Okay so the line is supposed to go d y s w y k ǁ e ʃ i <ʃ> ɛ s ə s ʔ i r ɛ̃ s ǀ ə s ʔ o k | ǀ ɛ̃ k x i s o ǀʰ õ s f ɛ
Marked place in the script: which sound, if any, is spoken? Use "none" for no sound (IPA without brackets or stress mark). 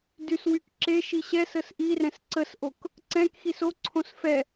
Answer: ɕ